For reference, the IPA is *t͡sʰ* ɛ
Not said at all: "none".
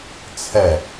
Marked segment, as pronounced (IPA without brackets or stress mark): t͡sʰ